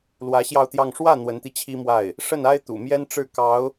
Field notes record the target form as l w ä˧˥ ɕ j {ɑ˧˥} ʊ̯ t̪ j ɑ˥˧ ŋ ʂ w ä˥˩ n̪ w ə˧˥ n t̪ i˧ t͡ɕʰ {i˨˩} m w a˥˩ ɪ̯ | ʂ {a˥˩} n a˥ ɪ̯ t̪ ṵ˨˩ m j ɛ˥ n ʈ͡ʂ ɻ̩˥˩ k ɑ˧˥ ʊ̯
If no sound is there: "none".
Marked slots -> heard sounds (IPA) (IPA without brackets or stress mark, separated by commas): ɑ˥˧, i˥, ə˥˩